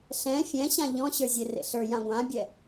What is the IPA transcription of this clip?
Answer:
ɬɛ̃ fʲɛ̃ ɕãʎɔ̃ɕə˞zʲe rḛɬə˞ jãɡʷãbʲɛ

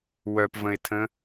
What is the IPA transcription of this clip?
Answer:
wœpvə̃ɪ̯tʰə̃

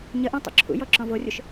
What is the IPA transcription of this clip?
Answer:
ɲəʔõ tˤṵǁʰṵjɔ ǁɔ̃vorʲʊʃ

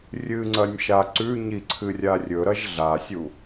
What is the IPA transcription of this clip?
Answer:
rʲɨŋ͡ǀɐnʲʃa ǀʉɲiǀʰɨrʲa rʲɵɾɐʒ ɮasʲu

